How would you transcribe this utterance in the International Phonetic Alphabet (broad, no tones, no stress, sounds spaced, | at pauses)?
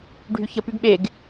ɖʱ y ç ə p y ɡ ɓ e ɡ